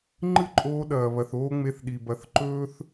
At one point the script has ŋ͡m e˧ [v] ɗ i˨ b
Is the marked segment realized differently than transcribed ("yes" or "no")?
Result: yes